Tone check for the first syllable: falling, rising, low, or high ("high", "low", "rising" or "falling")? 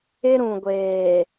high